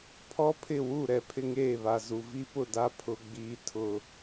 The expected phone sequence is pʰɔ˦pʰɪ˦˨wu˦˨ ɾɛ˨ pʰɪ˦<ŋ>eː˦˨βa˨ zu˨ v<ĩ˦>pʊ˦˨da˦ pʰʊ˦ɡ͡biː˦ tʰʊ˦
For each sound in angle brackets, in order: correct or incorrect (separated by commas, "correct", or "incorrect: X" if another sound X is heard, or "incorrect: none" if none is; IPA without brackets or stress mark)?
correct, incorrect: i˦